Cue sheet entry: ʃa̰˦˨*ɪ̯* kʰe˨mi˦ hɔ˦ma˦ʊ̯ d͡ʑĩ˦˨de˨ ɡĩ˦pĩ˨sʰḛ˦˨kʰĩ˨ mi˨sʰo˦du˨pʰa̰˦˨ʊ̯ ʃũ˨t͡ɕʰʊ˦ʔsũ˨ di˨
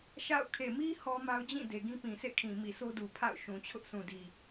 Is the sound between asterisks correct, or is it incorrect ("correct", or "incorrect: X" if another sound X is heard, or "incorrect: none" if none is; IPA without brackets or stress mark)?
incorrect: ʊ̯